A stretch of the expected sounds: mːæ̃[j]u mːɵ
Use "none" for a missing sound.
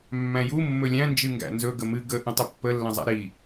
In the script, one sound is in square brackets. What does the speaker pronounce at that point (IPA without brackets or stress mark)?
j